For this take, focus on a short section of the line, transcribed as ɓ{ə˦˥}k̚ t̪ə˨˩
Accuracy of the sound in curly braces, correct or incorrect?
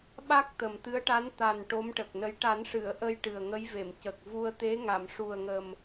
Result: incorrect